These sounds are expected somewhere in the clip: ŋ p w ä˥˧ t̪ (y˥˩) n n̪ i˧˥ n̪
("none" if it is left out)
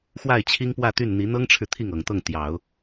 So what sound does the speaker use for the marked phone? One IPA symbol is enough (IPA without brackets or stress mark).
y˥˩